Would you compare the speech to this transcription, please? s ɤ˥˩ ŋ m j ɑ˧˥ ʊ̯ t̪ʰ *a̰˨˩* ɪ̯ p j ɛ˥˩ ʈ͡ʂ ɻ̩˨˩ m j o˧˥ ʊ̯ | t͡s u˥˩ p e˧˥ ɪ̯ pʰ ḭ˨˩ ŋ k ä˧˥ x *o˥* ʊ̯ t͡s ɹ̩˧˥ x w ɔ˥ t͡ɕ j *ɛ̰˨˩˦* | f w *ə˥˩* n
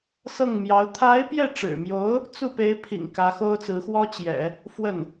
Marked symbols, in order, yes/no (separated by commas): no, yes, yes, yes